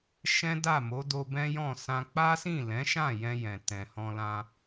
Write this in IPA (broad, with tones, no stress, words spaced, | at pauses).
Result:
ʃɛ̃˦da˦˨mo˨˦ do˧bɛ̃˦jɔ̃˦˨sã˧ k͡pa˦sĩ˦˨lɛ̃˨˦ʃã˦˨ jɛ̃˧ jɛ̃˨tɛ̃˨hɔ̃˧lã˧